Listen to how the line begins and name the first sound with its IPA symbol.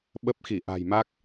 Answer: ɓ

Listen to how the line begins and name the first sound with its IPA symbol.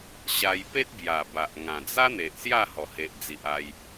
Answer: ɕ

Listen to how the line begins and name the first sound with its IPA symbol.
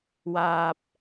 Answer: w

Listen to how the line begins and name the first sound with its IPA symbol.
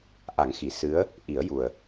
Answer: ʔ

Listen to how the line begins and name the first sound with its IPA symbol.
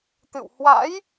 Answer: t̪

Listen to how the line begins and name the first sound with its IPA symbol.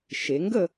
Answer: ʃ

